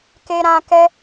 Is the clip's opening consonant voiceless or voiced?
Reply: voiceless